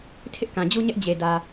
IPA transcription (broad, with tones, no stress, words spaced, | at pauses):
tʰɪ˦ʔkã˨d͡ʑu˦ɲɛ˦ʔ d͡ʑe˨ dä˨